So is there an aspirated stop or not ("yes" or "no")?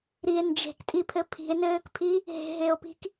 yes